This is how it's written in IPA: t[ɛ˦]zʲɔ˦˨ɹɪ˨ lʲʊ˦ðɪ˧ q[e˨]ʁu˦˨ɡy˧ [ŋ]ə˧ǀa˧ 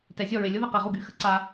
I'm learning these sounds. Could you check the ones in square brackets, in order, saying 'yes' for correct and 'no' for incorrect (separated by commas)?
no, yes, no